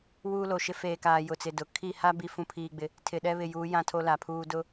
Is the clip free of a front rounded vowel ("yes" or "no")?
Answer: yes